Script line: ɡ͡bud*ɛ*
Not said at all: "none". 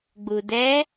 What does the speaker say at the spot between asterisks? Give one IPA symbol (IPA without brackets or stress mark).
ɛ